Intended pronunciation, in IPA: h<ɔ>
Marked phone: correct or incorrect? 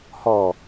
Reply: correct